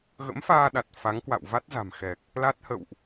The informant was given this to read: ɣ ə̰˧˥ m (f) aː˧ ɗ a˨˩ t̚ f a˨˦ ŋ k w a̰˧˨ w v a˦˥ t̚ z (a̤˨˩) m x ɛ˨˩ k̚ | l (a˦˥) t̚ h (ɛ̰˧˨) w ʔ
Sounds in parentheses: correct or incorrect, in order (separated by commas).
correct, correct, correct, incorrect